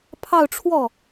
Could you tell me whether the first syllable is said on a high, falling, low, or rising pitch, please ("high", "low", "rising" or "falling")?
falling